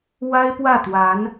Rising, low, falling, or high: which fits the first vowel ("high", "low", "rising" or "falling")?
high